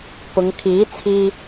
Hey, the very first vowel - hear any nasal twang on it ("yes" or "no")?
no